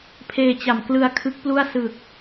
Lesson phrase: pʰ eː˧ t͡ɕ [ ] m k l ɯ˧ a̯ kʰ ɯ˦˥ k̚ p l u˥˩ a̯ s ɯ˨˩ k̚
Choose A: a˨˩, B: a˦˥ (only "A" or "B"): A